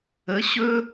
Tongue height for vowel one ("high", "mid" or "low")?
mid